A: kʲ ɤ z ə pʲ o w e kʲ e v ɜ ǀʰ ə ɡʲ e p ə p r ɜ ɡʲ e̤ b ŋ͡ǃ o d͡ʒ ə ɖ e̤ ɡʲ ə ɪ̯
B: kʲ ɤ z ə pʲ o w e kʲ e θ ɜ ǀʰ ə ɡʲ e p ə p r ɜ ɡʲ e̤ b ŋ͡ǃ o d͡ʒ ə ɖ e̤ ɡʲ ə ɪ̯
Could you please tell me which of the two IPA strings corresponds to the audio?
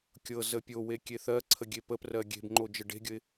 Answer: B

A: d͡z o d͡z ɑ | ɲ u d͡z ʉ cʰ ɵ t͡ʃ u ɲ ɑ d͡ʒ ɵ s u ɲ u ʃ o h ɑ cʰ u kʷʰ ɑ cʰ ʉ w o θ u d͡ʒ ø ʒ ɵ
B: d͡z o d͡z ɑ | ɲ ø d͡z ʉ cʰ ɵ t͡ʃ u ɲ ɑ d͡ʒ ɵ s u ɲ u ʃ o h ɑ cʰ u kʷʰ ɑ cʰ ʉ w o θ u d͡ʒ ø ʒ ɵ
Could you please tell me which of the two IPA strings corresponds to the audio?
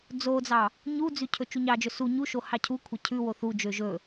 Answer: A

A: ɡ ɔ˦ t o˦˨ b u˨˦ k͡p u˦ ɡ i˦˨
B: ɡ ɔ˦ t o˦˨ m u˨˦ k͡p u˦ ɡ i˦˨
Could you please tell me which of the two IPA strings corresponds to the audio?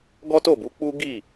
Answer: A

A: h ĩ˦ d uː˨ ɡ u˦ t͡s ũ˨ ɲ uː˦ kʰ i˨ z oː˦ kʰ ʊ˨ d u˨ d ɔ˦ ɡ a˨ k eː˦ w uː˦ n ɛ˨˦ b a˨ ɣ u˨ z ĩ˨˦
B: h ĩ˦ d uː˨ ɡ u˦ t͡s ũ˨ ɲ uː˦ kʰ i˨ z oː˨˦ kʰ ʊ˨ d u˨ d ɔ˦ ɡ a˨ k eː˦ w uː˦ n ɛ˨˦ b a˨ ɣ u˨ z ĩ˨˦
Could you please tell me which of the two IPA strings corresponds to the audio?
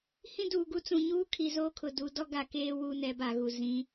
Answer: A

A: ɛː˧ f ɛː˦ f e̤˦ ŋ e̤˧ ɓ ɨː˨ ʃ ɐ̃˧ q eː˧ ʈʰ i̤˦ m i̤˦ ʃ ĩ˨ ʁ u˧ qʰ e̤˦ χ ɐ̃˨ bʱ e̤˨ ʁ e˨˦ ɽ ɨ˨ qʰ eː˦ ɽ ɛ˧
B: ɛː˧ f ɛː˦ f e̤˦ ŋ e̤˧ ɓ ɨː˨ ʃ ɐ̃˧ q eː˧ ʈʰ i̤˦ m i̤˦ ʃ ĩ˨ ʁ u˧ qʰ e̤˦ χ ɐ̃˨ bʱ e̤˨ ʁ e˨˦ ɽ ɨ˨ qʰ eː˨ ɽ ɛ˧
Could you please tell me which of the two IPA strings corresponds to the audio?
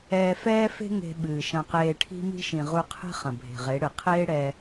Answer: A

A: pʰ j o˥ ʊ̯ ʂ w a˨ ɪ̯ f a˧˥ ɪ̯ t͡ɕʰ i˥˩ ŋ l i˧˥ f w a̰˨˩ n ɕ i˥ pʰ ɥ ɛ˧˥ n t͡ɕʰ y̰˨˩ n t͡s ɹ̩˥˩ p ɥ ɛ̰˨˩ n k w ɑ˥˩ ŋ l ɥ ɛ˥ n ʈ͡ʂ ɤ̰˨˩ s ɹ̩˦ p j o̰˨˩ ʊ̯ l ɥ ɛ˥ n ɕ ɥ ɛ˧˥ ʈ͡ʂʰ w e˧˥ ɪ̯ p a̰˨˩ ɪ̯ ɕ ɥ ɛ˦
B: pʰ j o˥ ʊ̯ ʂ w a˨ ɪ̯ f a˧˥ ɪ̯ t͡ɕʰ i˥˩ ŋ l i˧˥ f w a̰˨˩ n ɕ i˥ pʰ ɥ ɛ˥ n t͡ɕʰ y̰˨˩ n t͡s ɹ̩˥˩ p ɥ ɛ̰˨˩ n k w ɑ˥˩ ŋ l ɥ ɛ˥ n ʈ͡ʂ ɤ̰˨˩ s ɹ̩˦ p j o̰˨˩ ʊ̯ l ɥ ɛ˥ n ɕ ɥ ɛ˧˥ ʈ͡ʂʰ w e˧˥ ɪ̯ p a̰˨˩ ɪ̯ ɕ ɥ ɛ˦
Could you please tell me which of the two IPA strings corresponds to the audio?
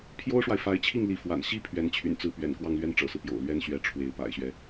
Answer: A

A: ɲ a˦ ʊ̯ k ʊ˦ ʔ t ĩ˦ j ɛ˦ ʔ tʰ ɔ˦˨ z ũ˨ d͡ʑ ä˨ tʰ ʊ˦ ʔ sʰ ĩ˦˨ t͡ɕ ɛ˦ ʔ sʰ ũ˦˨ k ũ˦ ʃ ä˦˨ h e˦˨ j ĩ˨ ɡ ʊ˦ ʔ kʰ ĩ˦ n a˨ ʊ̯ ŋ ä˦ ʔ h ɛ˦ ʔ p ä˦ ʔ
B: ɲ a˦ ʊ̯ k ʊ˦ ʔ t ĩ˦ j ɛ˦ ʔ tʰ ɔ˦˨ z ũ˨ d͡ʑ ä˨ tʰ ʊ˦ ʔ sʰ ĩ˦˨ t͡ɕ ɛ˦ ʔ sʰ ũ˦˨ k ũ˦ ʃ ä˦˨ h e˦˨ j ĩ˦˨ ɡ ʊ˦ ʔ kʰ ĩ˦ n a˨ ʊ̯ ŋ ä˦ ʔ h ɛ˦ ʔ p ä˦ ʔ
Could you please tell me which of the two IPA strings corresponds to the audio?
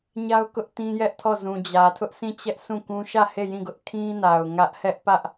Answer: B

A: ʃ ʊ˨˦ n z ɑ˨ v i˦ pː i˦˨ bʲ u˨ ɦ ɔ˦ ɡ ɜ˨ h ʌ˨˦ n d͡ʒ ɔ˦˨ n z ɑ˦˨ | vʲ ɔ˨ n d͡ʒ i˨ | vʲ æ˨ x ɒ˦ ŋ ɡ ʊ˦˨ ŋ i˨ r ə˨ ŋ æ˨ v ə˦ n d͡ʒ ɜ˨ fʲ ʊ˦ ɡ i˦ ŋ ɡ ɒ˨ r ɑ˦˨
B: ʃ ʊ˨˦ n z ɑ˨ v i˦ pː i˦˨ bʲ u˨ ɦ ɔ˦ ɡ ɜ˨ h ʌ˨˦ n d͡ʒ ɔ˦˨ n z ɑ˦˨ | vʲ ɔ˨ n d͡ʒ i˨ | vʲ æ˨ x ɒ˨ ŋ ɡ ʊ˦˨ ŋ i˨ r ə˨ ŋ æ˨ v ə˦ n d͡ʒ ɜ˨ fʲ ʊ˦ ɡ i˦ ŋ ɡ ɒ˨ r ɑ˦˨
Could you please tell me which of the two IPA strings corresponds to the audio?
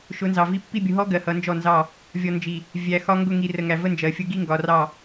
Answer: A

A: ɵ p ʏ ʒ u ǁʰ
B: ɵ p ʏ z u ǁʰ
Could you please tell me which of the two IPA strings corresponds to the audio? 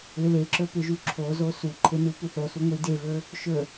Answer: A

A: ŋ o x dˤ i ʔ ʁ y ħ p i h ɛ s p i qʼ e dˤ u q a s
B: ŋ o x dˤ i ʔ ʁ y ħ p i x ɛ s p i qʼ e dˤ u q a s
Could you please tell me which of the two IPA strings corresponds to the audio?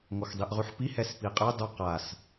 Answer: A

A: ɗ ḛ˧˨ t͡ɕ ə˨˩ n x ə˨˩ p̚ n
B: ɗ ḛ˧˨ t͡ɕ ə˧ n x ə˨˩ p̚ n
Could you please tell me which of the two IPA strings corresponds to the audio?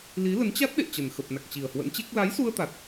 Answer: A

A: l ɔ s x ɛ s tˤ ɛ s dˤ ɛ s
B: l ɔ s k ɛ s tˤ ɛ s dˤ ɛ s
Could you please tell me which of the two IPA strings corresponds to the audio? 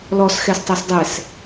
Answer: A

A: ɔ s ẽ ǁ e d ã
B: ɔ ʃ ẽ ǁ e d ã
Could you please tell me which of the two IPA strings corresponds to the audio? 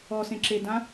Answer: A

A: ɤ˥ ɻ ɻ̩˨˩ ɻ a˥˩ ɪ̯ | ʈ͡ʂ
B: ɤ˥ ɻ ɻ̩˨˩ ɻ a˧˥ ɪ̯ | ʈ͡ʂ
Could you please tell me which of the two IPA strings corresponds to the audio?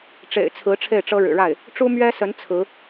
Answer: A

